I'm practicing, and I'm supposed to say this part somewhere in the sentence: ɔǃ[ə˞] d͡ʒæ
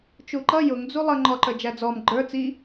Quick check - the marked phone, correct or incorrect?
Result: correct